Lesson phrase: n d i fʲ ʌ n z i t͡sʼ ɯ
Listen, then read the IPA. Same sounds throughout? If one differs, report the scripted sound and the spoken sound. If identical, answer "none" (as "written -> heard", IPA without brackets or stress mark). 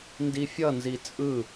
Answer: none